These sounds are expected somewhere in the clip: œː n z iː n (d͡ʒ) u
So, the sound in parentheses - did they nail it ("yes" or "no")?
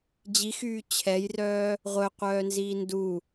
no